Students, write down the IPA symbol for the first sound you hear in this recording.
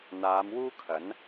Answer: n̪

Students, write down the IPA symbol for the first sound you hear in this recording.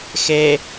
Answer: x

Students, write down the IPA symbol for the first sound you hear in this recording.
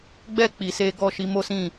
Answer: ɡ͡b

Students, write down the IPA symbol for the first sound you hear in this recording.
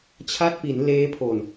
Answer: t͡ɕʰ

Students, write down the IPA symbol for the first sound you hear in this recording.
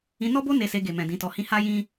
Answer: ĩ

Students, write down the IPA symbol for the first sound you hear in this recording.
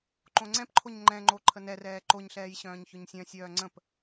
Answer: ǃ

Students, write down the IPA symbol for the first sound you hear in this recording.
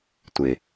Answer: tʷ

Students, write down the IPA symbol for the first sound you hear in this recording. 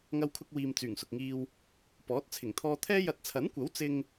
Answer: ŋ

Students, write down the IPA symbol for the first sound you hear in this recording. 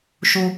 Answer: ʃ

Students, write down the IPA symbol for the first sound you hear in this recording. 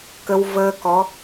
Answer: k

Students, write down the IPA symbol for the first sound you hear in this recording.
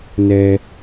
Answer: n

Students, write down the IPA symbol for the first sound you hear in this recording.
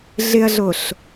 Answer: ɮ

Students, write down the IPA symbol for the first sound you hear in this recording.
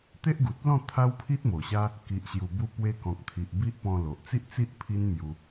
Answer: t̪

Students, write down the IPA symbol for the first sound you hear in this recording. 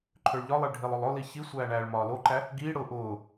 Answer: ǃʰ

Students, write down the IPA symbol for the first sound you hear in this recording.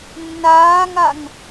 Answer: nː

